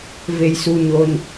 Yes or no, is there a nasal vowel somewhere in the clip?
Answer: no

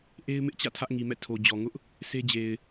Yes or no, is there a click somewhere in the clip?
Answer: no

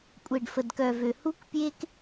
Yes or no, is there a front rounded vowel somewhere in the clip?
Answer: yes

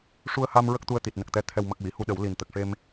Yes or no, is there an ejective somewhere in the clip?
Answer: no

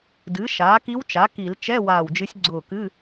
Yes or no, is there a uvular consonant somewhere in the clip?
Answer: no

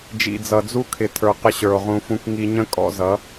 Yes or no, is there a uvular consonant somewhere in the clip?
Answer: yes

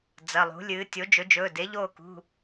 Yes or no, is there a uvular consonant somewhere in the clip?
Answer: no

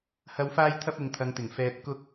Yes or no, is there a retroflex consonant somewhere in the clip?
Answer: no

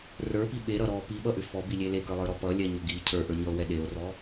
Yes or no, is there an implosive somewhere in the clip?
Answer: yes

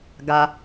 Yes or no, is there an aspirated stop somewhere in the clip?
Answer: no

